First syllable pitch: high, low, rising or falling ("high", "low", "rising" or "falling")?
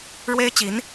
high